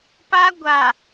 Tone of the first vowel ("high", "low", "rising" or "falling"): high